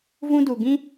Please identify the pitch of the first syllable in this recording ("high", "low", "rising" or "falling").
high